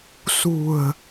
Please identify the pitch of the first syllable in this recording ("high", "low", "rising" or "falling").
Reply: low